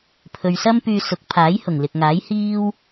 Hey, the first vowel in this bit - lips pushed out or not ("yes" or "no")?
yes